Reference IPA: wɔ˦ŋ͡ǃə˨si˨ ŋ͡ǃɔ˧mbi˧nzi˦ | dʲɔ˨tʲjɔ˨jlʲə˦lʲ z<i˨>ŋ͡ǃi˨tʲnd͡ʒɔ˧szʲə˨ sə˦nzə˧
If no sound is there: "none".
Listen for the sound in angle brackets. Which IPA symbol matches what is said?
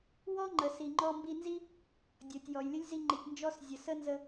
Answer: i˧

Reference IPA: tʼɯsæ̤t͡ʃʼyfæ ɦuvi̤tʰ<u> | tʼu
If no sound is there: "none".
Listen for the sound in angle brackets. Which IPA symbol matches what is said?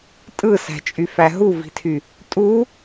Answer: y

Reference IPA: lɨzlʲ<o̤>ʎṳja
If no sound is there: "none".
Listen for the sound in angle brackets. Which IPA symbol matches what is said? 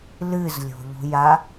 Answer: o̤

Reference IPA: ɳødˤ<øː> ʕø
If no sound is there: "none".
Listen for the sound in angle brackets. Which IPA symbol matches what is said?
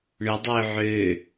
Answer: øː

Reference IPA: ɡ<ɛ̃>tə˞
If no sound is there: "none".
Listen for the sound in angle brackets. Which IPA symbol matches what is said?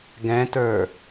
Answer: ɛ̃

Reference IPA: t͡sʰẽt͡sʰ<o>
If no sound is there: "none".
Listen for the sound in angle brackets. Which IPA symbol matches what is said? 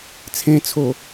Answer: o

